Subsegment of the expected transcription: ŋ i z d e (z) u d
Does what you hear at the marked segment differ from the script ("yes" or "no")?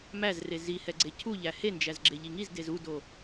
no